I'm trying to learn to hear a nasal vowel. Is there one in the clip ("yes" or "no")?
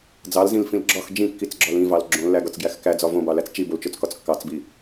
yes